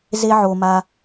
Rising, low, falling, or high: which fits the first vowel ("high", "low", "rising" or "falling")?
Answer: high